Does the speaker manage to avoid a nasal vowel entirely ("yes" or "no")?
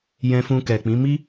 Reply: no